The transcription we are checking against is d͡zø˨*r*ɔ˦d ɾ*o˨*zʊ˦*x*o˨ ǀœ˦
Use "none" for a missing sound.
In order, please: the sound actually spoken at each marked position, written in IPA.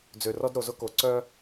r, o˨, k

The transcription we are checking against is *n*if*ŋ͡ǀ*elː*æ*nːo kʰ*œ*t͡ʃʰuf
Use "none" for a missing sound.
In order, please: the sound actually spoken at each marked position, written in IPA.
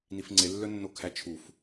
n, ŋ͡ǀ, œ, æ

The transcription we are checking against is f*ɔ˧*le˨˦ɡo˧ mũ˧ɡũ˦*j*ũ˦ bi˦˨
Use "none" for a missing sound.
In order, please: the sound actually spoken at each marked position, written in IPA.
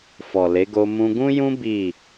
ɔ˨, j

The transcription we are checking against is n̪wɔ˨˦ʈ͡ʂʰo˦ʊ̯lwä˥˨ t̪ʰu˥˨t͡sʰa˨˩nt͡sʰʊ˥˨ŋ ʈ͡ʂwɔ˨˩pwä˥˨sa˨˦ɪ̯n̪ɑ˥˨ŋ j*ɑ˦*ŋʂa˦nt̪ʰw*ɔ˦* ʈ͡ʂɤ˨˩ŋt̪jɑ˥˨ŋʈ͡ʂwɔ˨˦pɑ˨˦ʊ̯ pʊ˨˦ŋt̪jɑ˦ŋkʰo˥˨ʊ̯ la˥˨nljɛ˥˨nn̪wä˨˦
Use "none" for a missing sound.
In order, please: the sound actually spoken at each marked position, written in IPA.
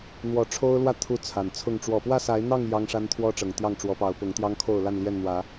ɑ˦, ɔ˦

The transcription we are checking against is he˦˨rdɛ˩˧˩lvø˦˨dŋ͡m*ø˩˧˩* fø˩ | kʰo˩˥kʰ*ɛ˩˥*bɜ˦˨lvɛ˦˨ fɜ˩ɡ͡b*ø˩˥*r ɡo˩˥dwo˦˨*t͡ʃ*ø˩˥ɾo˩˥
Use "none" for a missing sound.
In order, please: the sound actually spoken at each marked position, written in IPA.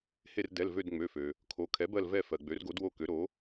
ø˩˧˩, ɛ˩˥, ø˩˥, k

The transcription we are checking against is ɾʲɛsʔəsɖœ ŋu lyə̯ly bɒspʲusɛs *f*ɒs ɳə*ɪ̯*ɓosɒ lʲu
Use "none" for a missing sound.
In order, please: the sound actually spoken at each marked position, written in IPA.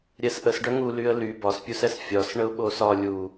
fʲ, ʊ̯

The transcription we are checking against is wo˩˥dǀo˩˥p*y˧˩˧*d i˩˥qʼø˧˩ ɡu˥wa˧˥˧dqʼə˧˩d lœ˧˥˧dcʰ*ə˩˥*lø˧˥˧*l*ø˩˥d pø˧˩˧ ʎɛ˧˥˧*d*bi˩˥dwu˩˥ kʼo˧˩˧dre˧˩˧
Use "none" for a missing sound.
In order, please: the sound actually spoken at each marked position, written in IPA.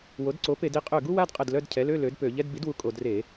e˧˩˧, ɛ˩˥, l, d

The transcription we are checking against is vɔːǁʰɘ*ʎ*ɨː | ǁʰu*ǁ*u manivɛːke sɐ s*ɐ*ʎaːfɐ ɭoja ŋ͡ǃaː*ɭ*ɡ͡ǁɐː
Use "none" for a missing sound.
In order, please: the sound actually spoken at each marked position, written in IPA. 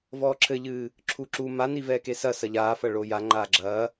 ʎ, ǁ, ɐ, none

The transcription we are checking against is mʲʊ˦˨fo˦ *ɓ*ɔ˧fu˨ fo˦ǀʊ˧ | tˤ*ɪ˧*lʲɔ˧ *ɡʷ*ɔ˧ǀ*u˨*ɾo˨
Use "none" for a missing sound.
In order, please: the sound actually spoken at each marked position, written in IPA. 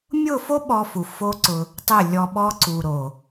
ɓ, ɪ˦˨, ɓ, u˨

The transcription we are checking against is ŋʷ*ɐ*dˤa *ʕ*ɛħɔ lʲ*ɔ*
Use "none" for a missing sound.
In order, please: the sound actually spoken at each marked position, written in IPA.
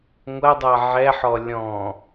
ɐ, ʕ, ɔ̃

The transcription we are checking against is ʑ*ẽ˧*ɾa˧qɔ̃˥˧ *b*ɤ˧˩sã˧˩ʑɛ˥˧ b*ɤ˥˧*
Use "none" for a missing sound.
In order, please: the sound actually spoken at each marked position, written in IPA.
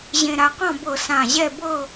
ẽ˧, b, ɤ˥˧

